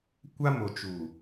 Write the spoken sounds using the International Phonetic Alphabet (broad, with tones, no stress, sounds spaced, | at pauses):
kʷ a˦ m o˨ t͡ʃ uː˨